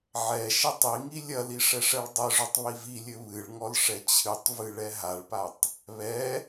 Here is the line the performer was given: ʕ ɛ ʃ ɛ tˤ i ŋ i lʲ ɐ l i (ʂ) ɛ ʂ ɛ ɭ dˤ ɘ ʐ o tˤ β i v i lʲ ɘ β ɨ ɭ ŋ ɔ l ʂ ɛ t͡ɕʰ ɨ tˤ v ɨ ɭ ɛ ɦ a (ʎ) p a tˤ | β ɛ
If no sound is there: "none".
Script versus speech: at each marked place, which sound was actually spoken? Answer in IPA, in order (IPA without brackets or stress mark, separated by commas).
ʂ, ɭ